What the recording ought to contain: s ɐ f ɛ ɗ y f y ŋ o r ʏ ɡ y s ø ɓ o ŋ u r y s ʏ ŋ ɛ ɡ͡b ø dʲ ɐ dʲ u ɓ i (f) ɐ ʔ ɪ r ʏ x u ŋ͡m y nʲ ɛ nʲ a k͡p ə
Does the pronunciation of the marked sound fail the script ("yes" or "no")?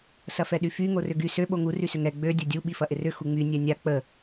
no